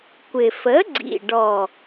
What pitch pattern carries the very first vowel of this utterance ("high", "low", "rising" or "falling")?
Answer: low